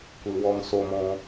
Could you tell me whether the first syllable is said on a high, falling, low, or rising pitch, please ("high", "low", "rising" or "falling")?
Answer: low